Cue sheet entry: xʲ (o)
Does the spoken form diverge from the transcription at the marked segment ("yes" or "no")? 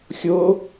no